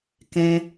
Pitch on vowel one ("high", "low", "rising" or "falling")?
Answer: high